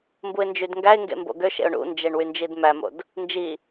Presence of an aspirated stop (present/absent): absent